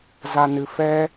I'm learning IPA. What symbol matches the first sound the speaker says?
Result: z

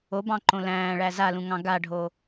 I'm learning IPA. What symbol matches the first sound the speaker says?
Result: o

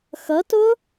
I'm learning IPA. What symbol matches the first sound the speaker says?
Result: x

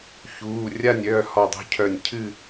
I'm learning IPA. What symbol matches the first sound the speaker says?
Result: ç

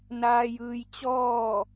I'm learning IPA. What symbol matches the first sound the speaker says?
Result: n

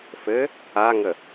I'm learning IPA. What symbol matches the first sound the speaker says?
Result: f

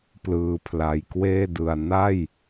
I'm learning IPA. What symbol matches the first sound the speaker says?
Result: p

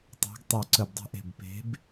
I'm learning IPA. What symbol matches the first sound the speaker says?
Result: tˤ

